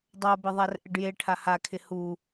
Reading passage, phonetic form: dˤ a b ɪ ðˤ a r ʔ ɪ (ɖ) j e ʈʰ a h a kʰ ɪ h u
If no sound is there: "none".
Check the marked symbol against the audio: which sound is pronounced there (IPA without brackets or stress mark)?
ɖ